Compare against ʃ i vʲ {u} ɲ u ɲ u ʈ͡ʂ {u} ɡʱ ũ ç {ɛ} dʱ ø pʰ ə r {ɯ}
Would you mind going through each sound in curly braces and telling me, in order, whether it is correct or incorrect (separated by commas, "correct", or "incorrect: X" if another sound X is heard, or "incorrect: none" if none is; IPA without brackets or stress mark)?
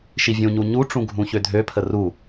incorrect: ũ, incorrect: ũ, incorrect: ø, incorrect: u